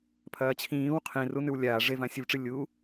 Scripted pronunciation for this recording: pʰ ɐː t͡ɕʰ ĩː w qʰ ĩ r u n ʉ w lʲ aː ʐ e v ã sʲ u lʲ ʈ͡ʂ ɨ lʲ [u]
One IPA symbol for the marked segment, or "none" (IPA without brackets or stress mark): u